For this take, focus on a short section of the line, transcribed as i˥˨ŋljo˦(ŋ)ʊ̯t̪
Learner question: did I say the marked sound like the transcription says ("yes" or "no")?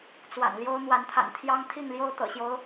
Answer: no